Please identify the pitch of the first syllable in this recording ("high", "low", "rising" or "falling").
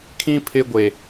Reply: high